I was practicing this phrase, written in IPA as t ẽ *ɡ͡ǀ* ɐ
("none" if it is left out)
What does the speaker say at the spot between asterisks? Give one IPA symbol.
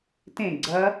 ɡ͡ǀ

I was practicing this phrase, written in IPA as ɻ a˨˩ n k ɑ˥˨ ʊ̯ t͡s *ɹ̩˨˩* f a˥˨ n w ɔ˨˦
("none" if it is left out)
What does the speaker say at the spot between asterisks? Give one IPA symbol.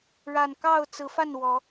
ɹ̩˨˦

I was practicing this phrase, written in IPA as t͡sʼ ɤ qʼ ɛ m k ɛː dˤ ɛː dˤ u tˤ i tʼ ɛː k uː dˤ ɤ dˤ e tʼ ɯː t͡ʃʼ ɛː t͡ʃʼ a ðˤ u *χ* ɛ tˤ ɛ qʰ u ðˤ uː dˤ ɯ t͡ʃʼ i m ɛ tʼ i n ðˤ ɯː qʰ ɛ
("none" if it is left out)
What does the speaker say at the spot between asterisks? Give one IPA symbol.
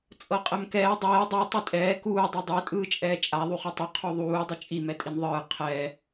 χ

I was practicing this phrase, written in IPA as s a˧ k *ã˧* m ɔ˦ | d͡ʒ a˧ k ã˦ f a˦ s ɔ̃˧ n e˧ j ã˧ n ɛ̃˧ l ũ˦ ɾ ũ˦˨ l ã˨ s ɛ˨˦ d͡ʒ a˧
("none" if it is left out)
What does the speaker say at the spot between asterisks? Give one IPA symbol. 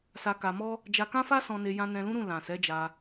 a˧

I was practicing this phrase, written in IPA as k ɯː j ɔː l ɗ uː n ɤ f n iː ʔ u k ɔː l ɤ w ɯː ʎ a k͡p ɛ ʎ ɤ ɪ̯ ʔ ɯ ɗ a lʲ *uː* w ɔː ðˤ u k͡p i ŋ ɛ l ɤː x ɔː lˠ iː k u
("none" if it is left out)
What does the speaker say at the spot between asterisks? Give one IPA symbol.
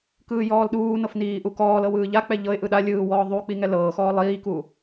ɯː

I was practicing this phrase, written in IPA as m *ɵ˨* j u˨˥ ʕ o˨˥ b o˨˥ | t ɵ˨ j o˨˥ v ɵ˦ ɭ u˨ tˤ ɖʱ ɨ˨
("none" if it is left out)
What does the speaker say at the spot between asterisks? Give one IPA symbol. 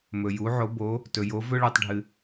ɵ˨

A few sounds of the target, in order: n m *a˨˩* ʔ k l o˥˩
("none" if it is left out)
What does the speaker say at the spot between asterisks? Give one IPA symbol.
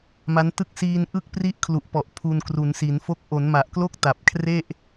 a˨˩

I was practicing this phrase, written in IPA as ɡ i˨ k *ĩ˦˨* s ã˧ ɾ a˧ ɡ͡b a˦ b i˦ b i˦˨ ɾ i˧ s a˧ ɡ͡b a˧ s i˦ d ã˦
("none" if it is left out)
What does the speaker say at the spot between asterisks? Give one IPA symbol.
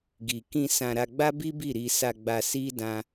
ĩ˧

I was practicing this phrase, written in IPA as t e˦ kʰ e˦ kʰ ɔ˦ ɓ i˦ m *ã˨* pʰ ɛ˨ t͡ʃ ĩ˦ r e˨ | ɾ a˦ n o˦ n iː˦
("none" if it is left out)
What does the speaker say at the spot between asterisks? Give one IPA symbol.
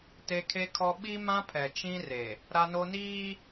ã˦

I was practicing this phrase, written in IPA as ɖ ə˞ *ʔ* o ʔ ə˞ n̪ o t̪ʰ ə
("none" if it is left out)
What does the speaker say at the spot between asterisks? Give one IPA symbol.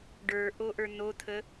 ʔ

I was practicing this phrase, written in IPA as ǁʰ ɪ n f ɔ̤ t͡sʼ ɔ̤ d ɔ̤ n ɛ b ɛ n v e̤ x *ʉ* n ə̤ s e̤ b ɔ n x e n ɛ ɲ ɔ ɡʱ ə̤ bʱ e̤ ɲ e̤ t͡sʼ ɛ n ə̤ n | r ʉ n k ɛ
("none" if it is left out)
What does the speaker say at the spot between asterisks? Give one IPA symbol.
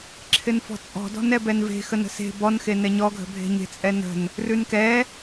ə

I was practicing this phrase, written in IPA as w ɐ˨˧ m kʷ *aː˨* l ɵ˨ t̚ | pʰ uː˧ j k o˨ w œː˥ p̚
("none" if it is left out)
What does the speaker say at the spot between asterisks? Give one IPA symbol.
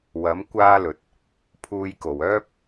aː˧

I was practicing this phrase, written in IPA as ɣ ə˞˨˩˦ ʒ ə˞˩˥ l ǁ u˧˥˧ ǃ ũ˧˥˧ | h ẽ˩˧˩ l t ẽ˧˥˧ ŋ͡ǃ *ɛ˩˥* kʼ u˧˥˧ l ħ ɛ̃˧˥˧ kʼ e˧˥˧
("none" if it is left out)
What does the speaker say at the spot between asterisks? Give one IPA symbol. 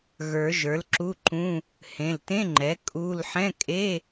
ɛ˩˥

